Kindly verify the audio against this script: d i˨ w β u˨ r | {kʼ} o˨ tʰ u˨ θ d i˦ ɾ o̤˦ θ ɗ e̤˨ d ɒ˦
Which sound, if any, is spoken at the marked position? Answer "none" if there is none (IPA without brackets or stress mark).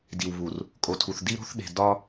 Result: kʼ